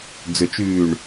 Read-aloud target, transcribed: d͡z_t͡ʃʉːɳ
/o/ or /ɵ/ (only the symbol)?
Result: ɵ